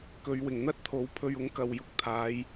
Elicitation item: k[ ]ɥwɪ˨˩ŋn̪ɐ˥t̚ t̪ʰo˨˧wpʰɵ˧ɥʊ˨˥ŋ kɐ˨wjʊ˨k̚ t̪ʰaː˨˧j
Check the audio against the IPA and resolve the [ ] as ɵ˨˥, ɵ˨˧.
ɵ˨˧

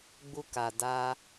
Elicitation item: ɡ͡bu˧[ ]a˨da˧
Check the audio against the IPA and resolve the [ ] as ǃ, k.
k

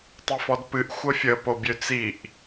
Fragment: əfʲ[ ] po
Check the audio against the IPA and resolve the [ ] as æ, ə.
ə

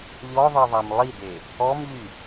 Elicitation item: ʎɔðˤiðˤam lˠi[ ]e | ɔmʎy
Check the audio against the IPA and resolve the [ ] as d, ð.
d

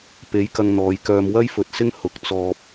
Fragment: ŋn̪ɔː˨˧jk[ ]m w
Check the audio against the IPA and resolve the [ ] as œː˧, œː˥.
œː˧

